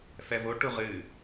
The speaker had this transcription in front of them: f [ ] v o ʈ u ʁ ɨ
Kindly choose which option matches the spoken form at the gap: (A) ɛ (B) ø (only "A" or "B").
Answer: A